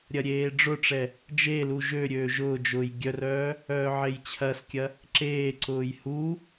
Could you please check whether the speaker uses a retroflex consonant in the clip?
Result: yes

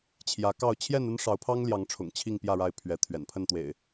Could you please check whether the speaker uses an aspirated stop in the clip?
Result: yes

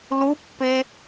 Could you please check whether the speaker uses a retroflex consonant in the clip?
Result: no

